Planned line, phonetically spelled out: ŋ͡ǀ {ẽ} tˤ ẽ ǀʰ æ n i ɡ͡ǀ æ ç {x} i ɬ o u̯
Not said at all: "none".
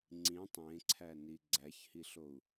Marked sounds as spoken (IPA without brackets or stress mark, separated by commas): ĩ, h